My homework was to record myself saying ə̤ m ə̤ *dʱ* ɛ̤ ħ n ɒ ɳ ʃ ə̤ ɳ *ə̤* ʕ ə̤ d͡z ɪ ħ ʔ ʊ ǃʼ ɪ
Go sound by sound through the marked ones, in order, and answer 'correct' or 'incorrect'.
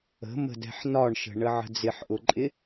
incorrect, incorrect

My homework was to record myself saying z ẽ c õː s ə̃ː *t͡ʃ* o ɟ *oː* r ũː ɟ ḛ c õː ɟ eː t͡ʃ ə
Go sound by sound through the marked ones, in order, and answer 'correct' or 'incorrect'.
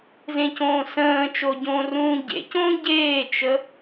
correct, incorrect

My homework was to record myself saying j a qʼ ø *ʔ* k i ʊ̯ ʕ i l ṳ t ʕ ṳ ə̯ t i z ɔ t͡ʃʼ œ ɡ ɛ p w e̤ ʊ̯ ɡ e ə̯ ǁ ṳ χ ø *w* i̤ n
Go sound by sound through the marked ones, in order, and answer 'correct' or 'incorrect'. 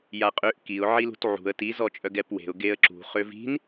correct, incorrect

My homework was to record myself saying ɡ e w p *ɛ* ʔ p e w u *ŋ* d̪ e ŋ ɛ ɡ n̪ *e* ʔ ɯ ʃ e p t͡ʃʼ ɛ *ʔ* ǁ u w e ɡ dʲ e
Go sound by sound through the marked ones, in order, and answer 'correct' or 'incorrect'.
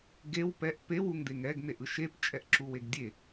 correct, correct, correct, correct

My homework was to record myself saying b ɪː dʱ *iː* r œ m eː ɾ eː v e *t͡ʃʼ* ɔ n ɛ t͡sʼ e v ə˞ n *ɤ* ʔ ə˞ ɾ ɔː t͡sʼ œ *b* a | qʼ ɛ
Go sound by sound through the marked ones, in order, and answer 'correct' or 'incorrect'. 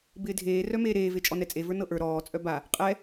incorrect, correct, correct, correct

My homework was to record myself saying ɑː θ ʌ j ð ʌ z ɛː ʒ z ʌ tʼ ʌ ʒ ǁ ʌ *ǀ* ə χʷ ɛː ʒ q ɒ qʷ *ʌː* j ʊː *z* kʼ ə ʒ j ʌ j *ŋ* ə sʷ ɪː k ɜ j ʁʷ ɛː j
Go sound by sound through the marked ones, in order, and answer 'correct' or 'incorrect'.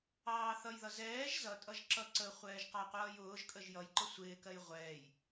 correct, correct, incorrect, incorrect

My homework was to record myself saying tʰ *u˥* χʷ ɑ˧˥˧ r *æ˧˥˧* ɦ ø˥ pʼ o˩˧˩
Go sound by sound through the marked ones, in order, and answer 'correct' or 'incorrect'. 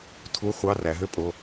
incorrect, incorrect

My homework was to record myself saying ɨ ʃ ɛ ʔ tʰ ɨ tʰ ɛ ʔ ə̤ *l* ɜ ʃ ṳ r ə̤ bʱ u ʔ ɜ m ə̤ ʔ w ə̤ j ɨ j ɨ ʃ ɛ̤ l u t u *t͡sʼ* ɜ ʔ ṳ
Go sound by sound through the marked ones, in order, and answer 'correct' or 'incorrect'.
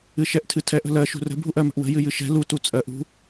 correct, correct

